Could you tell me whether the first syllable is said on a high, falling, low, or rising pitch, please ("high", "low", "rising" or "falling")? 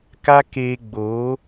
high